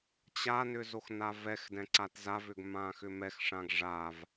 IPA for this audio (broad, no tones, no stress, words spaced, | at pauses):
t͡ɕanʏ zoxnavɛxdɛ̃ ǀatzavʏɡ mãxʏmɛxʂãɡ ʐav